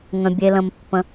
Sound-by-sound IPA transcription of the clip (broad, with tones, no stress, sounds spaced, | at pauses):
ŋ ə̃˧ bʲ e˧ l ə̃˧ m pː ə̃˧